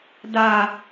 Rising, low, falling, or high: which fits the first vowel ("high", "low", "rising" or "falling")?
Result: high